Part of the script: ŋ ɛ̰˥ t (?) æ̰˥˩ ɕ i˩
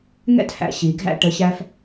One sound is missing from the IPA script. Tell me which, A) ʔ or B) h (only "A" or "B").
B